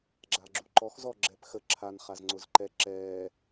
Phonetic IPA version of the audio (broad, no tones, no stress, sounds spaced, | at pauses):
ɡ͡ǁ a ɡ͡ǁ u ǃ ɔ x z ɔ ɡ͡ǁ ɛ p x ə ǁʰ a n χ a z ŋ͡ǀ ʊ z ǃ ɛ ǁ ɛː